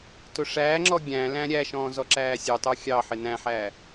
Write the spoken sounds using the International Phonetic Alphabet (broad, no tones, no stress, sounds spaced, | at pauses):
t ʊ ʂ æː ŋ͡ǁ ɔ ɡʲ æ̃ l æ̃ ɾʲ æ ʃ ɔ̃ː z ɔ ǁ æː sʲ ə˞ tˤ ə˞ xʲ ɑ ħ ɪ n æ̃ ħ æː